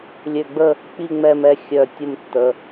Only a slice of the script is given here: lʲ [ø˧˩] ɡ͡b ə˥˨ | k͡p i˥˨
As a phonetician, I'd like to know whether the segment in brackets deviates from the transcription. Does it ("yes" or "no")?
no